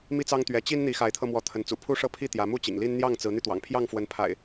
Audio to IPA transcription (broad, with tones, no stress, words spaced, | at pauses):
mi˦t͡sɑ˦ŋt̪ɥɛ˨˦ t͡ɕi˦n n̪i˨˦xa˨˦ɪ̯t̪ʰɤ˧mwɔ˨˦ t̪ʰə˨˦nt͡sṵ˨˩pʰu˦ʂɤ˦ pʰi˥˨t̪jä˨˦ mu˦t͡ɕḭ˨˩ŋli˦n n̪jɑ˥˨ŋt͡sɹ̩˨˦n̪y˧ t̪wɑ̰˨˩ŋpʰjɑ˥˨ŋfwə˨˦n pʰa̰˨˩ɪ̯